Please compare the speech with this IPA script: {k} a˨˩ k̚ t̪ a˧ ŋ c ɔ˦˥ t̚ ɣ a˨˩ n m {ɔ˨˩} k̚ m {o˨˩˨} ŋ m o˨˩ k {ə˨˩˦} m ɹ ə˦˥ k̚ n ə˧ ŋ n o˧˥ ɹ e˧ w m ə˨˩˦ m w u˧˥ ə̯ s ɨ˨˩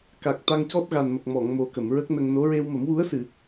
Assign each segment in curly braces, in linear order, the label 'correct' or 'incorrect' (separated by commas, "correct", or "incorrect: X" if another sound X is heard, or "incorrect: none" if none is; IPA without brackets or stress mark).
correct, incorrect: ə˨˩, incorrect: ɔ˨˩˨, incorrect: ə˨˩˨